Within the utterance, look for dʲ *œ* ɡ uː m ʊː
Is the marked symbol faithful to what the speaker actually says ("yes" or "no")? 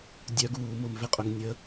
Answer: yes